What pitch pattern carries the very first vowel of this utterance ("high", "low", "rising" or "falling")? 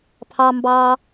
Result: low